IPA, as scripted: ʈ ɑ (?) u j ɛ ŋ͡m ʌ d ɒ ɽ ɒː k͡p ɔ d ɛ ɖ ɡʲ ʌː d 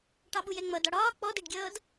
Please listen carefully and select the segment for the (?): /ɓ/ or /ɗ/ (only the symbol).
ɓ